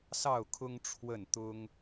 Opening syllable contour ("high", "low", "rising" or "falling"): falling